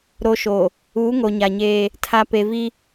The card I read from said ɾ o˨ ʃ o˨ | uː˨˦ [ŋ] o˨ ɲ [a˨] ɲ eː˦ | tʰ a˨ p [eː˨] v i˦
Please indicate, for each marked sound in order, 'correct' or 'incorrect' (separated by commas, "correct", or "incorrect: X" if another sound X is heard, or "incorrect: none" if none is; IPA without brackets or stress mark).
correct, correct, incorrect: e˨